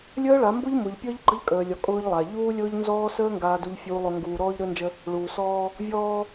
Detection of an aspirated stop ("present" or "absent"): absent